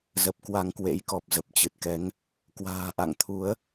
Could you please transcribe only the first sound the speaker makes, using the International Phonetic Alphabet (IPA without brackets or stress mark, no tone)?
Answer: z